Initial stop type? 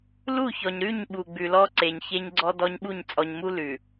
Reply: implosive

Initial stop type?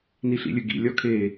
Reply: plain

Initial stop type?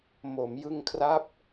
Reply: aspirated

